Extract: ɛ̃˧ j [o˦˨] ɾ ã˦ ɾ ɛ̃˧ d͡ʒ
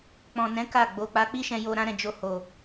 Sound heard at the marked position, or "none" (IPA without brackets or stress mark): o˧